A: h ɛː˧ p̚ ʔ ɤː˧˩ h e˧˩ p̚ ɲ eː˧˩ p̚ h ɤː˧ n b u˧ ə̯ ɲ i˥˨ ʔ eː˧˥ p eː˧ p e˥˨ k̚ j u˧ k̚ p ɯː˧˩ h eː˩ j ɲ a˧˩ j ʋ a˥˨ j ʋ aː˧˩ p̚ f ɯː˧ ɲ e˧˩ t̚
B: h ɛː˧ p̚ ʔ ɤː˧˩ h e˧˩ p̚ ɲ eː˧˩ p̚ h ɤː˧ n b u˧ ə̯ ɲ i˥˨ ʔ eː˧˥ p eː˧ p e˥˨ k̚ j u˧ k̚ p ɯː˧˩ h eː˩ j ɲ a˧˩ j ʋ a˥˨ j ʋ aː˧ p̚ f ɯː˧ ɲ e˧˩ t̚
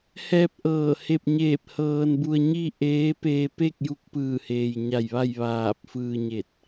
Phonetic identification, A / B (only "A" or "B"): A